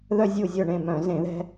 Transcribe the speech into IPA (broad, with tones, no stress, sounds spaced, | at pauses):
ð œ˧ zʲ u˧˩ zʲ œ˧˩ ɳ ẽ˧˩ m œ̃˧˩˧ z ẽ˧˩˧ ð ɛ̤˧